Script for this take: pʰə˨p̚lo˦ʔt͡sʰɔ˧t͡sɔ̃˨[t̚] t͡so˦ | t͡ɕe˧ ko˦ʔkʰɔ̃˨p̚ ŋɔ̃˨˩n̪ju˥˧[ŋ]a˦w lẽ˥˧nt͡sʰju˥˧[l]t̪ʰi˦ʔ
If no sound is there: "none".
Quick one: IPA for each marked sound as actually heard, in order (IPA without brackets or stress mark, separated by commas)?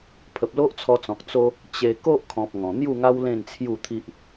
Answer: k̚, ŋ, none